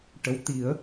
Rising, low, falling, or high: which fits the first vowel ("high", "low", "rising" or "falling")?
rising